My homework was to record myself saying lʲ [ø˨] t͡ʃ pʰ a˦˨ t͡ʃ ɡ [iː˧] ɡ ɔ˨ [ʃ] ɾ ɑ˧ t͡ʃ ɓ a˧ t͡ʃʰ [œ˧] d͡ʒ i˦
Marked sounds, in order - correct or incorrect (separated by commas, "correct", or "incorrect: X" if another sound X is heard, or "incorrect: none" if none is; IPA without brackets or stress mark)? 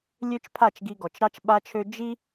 incorrect: ø˦, incorrect: i˧, incorrect: t͡ʃ, incorrect: ø˧